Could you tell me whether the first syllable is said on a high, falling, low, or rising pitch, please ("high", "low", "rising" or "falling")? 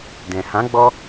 low